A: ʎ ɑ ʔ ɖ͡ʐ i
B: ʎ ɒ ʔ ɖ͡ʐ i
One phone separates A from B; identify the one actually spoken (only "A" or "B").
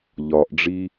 B